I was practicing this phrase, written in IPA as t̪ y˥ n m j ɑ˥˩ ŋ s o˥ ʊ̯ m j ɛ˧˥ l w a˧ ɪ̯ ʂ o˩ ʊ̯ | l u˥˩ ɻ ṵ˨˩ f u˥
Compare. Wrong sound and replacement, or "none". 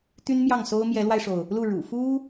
none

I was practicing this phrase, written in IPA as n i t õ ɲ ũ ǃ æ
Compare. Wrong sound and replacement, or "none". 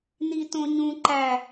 none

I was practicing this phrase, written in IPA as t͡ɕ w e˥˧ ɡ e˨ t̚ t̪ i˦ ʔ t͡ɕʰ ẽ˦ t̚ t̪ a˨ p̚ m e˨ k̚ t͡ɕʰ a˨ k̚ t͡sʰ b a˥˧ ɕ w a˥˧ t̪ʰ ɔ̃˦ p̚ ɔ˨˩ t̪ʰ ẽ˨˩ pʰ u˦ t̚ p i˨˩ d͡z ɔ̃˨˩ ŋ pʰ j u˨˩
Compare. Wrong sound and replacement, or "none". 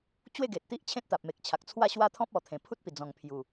b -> w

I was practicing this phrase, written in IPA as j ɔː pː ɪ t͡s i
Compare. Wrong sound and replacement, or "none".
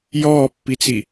ɪ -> i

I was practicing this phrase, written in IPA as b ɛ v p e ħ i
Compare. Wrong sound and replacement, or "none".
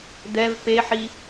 b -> d̪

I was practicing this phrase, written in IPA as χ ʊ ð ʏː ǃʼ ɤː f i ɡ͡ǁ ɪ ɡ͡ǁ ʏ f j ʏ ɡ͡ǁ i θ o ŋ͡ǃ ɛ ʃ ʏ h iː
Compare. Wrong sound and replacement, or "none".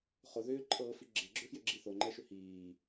none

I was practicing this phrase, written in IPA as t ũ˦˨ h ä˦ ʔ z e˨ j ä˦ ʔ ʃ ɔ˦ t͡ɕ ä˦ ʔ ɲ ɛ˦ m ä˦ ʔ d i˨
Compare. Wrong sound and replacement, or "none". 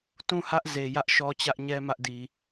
none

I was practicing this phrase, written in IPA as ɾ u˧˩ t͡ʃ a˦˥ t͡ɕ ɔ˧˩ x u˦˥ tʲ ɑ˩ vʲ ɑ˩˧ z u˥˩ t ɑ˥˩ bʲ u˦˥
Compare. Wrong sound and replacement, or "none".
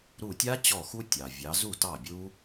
t͡ʃ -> tʲ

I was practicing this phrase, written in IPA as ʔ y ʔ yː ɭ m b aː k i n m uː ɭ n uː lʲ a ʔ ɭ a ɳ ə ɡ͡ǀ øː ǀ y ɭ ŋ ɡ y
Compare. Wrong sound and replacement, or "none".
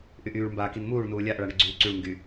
øː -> yː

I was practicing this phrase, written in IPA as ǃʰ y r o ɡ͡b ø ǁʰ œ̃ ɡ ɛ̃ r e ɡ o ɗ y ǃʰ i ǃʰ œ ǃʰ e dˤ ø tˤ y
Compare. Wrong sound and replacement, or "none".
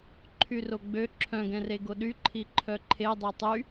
none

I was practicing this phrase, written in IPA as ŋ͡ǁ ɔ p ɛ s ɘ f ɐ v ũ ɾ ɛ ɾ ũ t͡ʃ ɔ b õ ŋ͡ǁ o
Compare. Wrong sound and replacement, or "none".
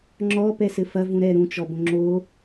none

